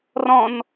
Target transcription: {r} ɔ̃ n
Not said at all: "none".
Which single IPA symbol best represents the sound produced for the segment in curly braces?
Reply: r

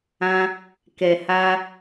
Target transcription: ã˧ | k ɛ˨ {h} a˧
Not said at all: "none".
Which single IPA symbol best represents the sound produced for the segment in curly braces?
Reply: h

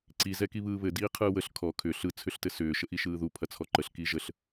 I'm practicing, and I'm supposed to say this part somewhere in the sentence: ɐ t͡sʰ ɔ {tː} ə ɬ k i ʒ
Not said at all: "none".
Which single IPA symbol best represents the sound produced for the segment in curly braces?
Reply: ǃ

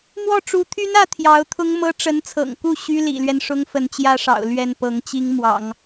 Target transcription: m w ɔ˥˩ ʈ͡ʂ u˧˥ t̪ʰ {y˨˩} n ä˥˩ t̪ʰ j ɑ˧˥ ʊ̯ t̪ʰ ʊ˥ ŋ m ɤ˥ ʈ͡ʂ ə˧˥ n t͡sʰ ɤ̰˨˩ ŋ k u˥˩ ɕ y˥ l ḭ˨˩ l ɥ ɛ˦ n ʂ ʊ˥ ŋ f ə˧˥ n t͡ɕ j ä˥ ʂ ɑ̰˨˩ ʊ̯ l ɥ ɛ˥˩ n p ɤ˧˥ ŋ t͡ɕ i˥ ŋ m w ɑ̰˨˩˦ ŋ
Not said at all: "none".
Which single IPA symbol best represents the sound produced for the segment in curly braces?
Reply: y˥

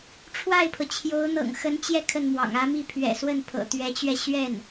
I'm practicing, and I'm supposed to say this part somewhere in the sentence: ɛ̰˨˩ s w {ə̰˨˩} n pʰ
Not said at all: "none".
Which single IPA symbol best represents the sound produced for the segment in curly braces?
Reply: ə˥˩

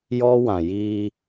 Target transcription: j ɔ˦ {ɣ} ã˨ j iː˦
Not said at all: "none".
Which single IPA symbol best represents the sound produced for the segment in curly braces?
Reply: w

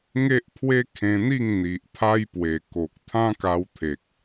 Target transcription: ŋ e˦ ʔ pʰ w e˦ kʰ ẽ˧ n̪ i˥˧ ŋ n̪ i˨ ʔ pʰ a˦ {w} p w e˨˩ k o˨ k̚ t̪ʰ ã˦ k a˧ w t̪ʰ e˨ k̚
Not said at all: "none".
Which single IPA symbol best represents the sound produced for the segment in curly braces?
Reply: j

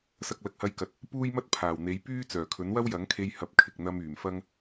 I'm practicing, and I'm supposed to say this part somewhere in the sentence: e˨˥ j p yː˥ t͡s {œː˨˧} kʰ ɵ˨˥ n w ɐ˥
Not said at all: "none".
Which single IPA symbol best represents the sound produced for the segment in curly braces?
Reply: œː˨˩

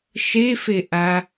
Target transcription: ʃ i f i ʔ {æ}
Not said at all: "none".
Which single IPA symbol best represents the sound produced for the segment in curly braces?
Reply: æ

